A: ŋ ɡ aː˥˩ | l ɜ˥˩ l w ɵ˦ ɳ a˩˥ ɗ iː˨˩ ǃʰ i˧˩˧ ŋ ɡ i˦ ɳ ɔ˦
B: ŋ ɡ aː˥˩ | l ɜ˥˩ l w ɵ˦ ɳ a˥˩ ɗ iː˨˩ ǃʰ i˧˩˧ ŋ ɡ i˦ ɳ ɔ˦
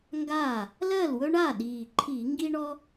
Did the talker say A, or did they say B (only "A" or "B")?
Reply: B